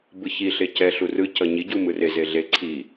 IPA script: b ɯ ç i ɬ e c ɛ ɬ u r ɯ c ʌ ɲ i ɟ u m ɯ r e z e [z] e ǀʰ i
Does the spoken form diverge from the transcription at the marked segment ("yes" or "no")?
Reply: yes